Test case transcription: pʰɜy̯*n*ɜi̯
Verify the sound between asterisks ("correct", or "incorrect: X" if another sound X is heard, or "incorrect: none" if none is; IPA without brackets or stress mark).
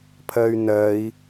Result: correct